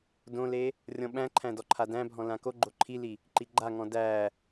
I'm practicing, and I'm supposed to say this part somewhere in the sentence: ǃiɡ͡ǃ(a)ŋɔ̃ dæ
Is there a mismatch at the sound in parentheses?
no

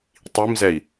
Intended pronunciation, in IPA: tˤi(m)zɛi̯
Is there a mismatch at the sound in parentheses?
no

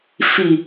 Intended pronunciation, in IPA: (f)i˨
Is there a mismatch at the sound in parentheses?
no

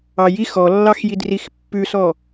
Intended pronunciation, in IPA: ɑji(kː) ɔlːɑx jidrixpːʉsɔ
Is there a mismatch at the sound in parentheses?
yes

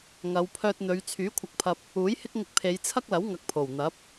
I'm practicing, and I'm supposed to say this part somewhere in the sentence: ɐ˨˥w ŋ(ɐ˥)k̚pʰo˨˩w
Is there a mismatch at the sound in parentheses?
yes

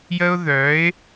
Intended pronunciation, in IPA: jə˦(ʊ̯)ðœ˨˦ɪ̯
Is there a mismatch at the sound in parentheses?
no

